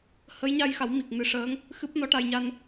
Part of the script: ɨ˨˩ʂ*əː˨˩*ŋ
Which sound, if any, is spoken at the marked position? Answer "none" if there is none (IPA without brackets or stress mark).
əː˧˥